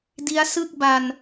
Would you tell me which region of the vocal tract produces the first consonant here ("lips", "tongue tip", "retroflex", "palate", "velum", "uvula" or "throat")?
tongue tip